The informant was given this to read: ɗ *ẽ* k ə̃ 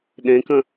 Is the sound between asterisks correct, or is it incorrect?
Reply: correct